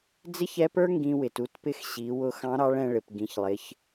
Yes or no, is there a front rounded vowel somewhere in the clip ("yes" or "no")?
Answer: no